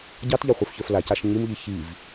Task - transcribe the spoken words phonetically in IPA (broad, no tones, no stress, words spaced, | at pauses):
ɟɑtʎɑχʷə˞fçə˞f lacaʃ ɲimʎi çiv